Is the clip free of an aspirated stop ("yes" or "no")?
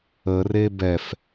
yes